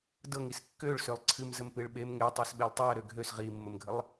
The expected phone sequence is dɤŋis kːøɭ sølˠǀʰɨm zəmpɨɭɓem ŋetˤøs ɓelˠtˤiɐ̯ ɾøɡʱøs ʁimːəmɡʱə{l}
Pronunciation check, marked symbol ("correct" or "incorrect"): incorrect